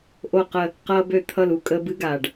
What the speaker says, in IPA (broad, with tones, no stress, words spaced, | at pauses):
ʔo˧˩qə˧˩ | qʌː˧bø˧ t̪ʰʌ˧˩lu˧˩ kʼəː˧bɨ˧˥˧ ɡaː˩ɖ